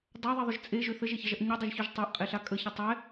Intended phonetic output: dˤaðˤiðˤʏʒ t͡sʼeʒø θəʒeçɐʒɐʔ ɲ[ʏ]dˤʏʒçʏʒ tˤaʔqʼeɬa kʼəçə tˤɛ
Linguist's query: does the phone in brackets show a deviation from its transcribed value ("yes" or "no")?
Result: no